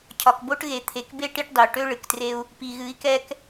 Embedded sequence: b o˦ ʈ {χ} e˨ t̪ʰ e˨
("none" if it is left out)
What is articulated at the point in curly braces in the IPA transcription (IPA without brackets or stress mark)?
ɣ